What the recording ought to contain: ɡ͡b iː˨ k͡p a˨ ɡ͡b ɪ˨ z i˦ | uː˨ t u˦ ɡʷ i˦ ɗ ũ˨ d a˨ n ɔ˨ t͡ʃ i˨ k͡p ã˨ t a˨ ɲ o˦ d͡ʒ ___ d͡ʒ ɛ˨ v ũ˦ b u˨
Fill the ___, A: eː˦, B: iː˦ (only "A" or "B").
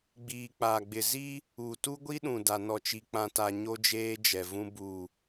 A